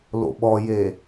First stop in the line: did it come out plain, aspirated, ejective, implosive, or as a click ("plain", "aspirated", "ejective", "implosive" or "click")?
implosive